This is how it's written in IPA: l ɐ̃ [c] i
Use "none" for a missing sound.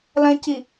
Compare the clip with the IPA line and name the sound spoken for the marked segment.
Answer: c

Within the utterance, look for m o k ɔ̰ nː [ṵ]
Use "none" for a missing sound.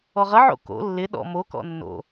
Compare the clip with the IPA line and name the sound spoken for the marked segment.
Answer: o̰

